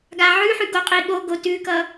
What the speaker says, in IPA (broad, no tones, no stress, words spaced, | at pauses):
ɡaʕʉħʉ ɡoqʼiɠoɡo tʉkʌ